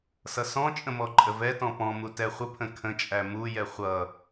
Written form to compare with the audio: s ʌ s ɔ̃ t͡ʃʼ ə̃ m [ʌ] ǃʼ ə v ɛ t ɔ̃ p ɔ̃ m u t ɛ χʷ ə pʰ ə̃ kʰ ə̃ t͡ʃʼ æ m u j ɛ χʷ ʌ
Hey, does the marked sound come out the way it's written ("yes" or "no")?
no